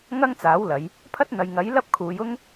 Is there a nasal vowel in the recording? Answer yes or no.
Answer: no